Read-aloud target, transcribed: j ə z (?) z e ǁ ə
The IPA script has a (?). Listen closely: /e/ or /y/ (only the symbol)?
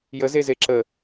e